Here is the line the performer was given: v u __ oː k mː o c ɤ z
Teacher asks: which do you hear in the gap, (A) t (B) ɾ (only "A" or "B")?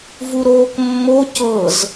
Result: B